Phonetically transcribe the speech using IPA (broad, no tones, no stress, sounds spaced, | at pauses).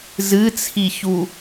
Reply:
z ɨ t͡sʰ i ç u